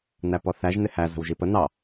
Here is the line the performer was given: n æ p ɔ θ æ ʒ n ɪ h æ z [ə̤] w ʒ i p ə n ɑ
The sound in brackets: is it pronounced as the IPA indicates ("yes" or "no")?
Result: yes